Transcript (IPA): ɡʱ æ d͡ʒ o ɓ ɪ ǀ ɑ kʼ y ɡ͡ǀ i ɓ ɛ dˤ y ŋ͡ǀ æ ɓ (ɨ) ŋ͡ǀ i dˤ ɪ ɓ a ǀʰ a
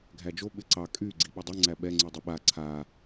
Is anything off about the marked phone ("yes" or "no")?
yes